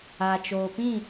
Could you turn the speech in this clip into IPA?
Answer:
a˨ t͡ʃ oː˨ p ĩ˦˨

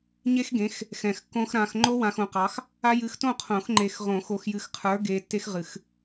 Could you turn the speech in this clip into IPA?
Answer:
ɲ e˦ x ɡ ẽ˨˦ x | x ɛ̃˨ x kː õ˦ x ɾ ã˨ x ŋ͡ǃ o˦ w ã˨ x õ˨ q ɑ˨˦ x | a˦ j ɨ˨˦ x t õ˥˨ qʰ õ˨˩˦ x ŋ͡ǃ e˨ x ʁ õ˨˩˦ x o˨ x j ɨ˨ x qʰ ə˞˨˦ ɡ e˨ tː e˦ x ʁ ɨ˨˩˦ x

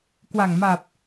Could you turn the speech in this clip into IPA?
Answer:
k w a˨˩ ŋ m a˨˩ p̚

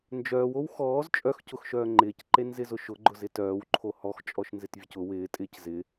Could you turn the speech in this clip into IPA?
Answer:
n d͡ʒ œː w o w x ɔː z t͡ʃʼ œ x c ʊ x ʃ œː ŋ͡ǃ ɪː c ǃ e n z ɪ z ʊ ʃ ʊ ɡ͡ǃ ʊ z ɪ t œː w ǃʰ o h ɔ x t͡ʃʼ ɔ ʃ n z ɪ t vʲ ʊ c ʊ w ɪː tʼ ɪː c z ɪ

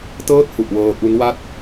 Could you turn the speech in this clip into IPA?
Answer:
t ɤː˥˩ t̚ h u˨˩ ʔ w ɤː˧ ʔ u˦˥ n w a˥˩ t̚

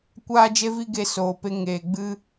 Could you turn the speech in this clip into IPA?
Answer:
kʷ aː˦ d͡ʒ e˦ v i˦ ɡ e˧ s oː˨ p e˧ ŋ eː˨ ɡ͡b ɨ˧

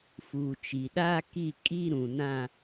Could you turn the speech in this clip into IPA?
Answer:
f uː˨ t͡ʃ i˨ ɗ aː˦ k i˦˨ kʼ i˦ ɾ ũ˨ n ã˦

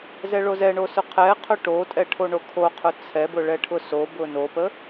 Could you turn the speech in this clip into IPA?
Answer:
z ɛ ɭ o z ɛ ɳ o s ʊ qʰ ɛ qʰ ʊ ʈ o tʼ ɛ ʈʰ o ɳ o kʰ o qʰ ʊ t͡sʰ ɛ b ʊ ɭ ɛ ʈʰ ʊ s o b ʊ n o p ə

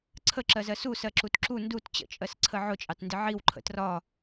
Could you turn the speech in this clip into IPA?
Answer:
ǀʰ ə ǁ ɜ z ɜ s u s ɜ ǁ u t ǁ u n d u t t͡ɕ ə̰ t͡ʃʼ ɜ s ǀʰ ə ʕ ʊ t͡ʃʼ ɑ t n d ɪ ʕ i w ǃʰ ə̰ t r ɒ

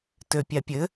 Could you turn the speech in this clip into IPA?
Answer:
t ø pʲ a pʲ ɘ

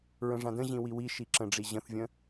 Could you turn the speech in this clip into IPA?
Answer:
ɹ ə̃ ʐ ã d ə̃ ʑ ĩ w i w i ʃ i ǁ ə̃ ɖ͡ʐ i ʑ ə̃ θ vʲ ə̃

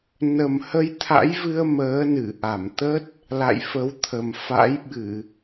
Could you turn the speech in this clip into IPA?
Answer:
n ə˨˩ m h ə˧ j t̪ʰ a̰˧˥ j v ɨ˧ ə̯ m əː˨˦ n ɨ˧˩ ʔ a˧˩ m t̪ ə˦˥ t̚ | l a̰˧˨ j f ə˨˦ w t̪ʰ ə˨˩ m f a̰˧˥ j ɓ ɨ˧˩˨

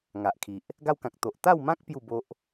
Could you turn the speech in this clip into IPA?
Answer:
ŋ a˨ ʔ kʰ i˨ ʔ | ɡ a˦ w k ã˨ k̚ t̪ o˨ ʔ t̪ a˥˧ w m ã˦ k̚ p j u˥˧ b o˦ ʔ

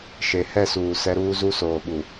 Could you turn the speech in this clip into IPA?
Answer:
ʃ e˨ h ɛ˦˨ s uː˨ s ɛ˦ ɾ uː˦ z u˦ s oː˨ ɓ u˨

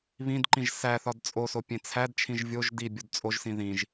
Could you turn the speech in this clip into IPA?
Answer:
β ĩ d ǃ ĩ ʒ s æ θ ɒ d t͡sʼ o s o pʲ ẽ t͡sʰ æ d t͡ʃʰ ĩ ʒ vʲ o ʒ d i bʲ o d t͡sʼ o ʒ s ĩ ð ĩ ʒ

